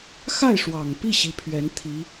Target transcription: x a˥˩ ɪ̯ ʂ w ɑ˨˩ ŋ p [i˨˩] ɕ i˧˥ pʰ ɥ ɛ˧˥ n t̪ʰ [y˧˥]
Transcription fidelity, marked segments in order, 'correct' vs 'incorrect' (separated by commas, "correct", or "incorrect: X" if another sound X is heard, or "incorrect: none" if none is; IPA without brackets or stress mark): incorrect: i˥˩, incorrect: i˧˥